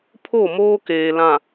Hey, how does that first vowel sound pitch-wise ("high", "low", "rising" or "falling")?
falling